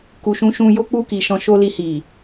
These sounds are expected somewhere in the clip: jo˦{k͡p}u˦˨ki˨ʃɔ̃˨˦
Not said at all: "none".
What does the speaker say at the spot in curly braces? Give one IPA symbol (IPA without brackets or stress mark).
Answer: k͡p